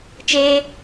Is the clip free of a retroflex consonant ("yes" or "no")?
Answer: yes